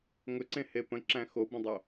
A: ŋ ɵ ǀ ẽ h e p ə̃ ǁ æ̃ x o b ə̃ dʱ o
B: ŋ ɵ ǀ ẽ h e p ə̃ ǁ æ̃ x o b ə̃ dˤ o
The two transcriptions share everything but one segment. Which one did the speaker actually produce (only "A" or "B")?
B